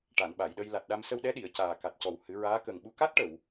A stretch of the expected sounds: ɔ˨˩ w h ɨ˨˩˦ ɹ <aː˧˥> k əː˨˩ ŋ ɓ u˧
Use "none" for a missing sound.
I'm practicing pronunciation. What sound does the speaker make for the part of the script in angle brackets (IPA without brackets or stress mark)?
aː˧˥